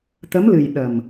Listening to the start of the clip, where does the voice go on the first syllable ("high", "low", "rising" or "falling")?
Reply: rising